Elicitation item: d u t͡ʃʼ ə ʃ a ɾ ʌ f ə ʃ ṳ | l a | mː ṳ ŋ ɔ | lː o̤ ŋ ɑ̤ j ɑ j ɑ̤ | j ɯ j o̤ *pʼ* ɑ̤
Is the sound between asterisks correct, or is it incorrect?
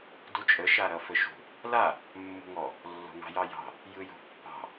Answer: incorrect